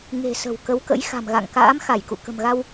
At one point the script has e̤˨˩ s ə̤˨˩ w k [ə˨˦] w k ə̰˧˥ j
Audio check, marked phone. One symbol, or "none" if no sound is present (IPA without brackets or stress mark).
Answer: ə˨˦